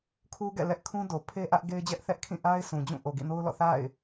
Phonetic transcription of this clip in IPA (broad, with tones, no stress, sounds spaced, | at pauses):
kʰ u˦ ɡ ɛ̰˦˨ l ɛ˦ ʔ kʰ ũ˦ d o˨ pʰ e˦ ʔ ä˦ ʔ ɡ e˦ ɪ̯ d͡ʑ ɛ˦ ʔ θ ɛ˦ ʔ kʰ ĩ˦˨ ʔ a˦ ɪ̯ s ũ˨ d͡ʑ ũ˦˨ ʔ o˨ ɡ ḭ˦˨ n o˦ ʊ̯ l ɔ̰˦˨ θ a̰˦˨ ɪ̯